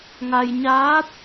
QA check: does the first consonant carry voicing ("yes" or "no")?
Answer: yes